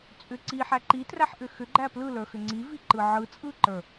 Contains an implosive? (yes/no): no